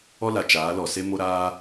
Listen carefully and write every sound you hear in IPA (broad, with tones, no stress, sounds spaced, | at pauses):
ɔ˦ l a˨ t͡ʃ aː˨˦ l ɔ˨ s e˦ m o˦ ɾ aː˦